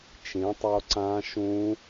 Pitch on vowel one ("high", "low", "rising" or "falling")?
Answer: rising